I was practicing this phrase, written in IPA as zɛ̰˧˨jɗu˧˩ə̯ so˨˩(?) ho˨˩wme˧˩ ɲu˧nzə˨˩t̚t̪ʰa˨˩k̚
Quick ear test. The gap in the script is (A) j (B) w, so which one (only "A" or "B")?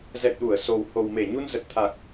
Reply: B